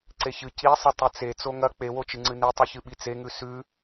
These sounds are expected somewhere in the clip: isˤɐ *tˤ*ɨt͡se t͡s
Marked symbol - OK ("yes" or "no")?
yes